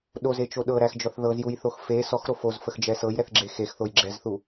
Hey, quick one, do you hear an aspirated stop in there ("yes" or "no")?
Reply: no